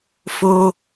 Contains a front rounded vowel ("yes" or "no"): no